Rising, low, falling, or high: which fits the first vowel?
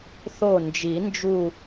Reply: falling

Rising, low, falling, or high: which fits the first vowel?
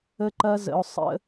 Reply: high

